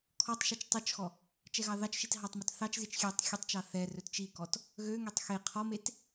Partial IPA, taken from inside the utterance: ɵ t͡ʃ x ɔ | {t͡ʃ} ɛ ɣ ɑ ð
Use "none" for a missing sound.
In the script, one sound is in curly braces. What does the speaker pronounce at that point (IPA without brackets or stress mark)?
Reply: t͡ʃ